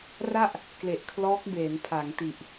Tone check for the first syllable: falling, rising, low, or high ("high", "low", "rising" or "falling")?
falling